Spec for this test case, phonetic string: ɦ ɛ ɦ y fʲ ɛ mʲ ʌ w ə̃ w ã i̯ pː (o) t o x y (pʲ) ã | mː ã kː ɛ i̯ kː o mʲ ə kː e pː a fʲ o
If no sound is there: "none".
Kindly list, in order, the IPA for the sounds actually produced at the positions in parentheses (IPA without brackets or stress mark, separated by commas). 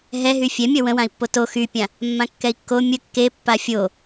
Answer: o, pʲ